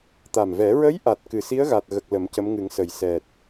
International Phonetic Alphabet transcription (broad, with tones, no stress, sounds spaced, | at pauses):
t̪ a˨˩ m v ɛ˨˩˦ ɹ ə˧˥ j ʔ a˨˩ t̚ k ɨ˨˩ s i˧˥ ə̯ ɣ a˨˩ t̚ ɣ ə˨˩ k̚ l ə˨˩˦ m c ə˧˥ m ŋ ɨ˨˩˦ ŋ s ə˨˩ j s ɛ˨˩ t̚